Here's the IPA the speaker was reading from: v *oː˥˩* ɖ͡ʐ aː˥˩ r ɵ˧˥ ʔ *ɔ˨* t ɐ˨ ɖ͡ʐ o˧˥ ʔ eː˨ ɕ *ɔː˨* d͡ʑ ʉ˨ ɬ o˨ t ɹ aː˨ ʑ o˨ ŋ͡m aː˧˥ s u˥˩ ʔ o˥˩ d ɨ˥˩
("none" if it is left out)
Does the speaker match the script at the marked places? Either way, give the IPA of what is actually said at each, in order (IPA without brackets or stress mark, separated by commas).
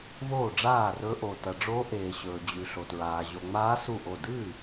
oː˥˩, o˨, ɵː˨